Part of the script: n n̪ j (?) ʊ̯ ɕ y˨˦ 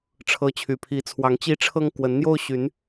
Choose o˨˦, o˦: o˦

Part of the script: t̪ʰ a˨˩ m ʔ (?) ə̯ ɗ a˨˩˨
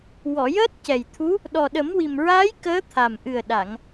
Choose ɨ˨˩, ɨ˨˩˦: ɨ˨˩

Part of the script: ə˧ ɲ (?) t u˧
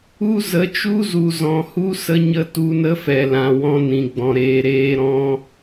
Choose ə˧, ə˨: ə˧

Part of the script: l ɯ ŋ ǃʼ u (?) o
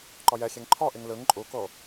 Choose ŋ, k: k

